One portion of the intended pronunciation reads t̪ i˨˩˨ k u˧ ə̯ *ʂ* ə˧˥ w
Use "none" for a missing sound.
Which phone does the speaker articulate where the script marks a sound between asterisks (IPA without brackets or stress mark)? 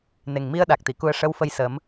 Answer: ʂ